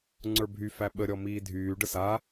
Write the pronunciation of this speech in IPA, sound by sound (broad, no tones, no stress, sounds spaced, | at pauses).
ŋ͡ǀ ə˞ bʱ y f æ ɓ ə ɾʲ ɔ m iː dʱ yː ɖ ə s a